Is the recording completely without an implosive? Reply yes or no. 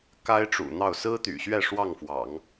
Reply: yes